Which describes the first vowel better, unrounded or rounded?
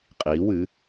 unrounded